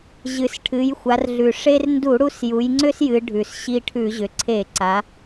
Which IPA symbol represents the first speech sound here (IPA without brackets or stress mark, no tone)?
ʑ